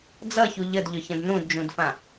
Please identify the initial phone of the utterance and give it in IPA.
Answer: d͡z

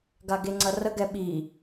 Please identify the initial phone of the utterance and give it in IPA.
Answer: ɡ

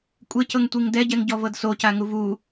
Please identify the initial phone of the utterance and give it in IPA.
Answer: kʷʼ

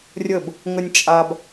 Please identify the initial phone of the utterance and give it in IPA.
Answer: rʲ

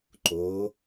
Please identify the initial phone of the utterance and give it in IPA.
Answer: ǃ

